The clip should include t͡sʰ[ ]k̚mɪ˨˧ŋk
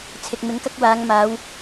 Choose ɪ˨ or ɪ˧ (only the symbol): ɪ˨